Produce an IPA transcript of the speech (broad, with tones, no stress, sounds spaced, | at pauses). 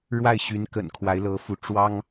ɻ w a˥˩ ɪ̯ ɕ y˧˥ n k ə̰˨˩ n kʰ w a˧˥ ɪ̯ l ɤ˧˥ f u˧˥ ʈ͡ʂ w ɑ˥ ŋ